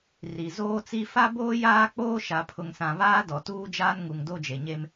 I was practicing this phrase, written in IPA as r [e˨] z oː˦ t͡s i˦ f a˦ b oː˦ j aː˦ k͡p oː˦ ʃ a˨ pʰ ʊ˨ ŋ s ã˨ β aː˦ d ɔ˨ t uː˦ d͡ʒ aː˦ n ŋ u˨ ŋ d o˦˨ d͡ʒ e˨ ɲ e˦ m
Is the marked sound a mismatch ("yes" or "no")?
yes